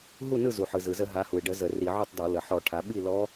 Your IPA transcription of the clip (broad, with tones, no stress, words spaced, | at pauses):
ɦu˥˩nɯ˥˩zu˩ħɯ˩ zɯ˩zə˧˩˧ ɦa˩˧hu˩e̯ɖə˧˩˧ zə˧˩˧ri˧˩˧ʕu˥˩tˤdɔ˧˩˧ lə˩ħɔ˧˩˧ʈʰa˩˧ ɓi˥˩lɔ˧˥